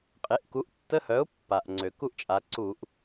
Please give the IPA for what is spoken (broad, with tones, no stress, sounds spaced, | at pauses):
qʼ e˩˥ ʔ k u˩˥ ʔ tː ə˧˥˧ h œ˩˥ ʊ̯ pː a˩ ʔ ŋ͡ǀ ø˩ k u˥˩ ʔ t͡ʃʼ a˩˧ ǀ u˧˩˧ ʔ